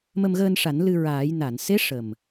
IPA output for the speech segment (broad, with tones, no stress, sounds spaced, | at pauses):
m ə˧ m ɣ əː˧ n ʂ a˨˩˦ n l ɨ˧ ɹ aː˨˩˦ j n a˨˩˨ n s e˧˥ ʂ ə˨˩ m